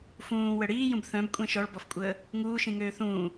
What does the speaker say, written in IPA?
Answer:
fũː wəɽiːjũb θœ̃bkʷʼẽ ʃɔɭbɔfkʷʼəː | ŋuːʃĩŋøː θũː

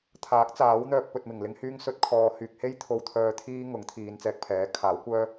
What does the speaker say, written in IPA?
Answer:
t̪ʰaː˨˥k̚t͡saː˨˥wn̪œː˧k̚ pɵ˧t̚mɪ˨˩ŋlɪ˥ŋ hyː˥ŋsɵ˥t̚kʰɔː˧ hyː˨k̚he˥j t̪ʰo˧wt̪ʰœː˧t̪ʰiː˥ ŋʊ˨˥ŋt̪ʰiː˨˧nt͡sɛː˧k̚pʰɛː˨˥ kʰaː˨˥wkʷœː˥

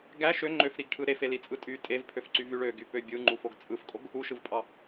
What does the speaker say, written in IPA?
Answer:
ɡæ ʃø ŋ͡ǃøfɾiɡʈʰɯ ɾefe lit͡sʼɯtʼy tʼevpʰøfǀyv yɭøɡy pøbʲɯŋ͡ǃufoɡ t͡sʼɯfkʼoɡ | uʃɯvpʼɑ

